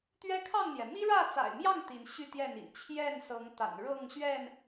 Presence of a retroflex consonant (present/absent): present